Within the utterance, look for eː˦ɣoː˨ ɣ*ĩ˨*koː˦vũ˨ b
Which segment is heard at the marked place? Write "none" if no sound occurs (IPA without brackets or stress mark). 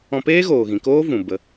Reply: ĩ˨